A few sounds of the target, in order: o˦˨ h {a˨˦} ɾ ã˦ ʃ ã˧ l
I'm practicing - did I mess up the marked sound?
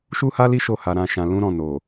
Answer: yes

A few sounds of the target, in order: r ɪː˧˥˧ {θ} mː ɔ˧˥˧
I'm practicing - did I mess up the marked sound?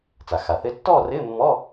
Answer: yes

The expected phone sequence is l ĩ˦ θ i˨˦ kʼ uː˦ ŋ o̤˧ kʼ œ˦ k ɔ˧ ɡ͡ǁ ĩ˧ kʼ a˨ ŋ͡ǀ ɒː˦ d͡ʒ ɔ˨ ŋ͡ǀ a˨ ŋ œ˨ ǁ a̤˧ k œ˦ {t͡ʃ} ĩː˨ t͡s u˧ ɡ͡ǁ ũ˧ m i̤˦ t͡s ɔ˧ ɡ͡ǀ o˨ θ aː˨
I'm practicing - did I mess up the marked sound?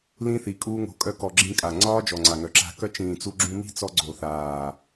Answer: no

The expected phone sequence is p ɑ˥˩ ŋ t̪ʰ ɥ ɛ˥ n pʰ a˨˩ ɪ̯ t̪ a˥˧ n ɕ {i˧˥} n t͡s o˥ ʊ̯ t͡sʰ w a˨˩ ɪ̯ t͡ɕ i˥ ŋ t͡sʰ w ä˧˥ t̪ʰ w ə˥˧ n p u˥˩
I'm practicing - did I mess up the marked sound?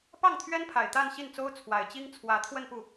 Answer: yes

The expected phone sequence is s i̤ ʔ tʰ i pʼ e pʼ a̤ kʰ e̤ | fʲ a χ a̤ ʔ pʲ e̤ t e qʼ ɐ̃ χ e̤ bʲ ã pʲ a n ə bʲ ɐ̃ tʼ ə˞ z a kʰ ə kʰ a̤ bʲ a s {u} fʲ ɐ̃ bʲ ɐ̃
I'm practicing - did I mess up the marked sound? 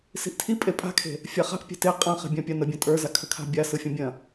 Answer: yes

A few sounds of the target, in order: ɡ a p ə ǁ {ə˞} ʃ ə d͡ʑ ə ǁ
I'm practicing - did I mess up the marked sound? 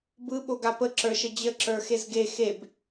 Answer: no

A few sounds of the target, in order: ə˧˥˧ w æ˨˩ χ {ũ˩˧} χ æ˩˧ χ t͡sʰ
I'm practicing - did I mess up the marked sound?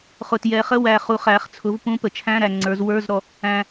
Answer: yes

